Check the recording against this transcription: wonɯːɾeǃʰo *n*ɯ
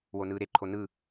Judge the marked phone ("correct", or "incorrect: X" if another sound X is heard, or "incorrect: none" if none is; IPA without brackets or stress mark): correct